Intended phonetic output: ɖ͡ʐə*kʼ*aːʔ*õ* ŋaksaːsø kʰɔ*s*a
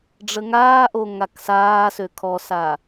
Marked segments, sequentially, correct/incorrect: incorrect, incorrect, correct

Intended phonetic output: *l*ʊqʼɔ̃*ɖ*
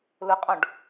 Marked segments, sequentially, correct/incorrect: correct, correct

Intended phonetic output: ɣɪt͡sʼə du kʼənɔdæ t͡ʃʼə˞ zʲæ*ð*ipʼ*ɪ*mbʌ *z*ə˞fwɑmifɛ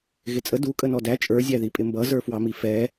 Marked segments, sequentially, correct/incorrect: correct, correct, correct

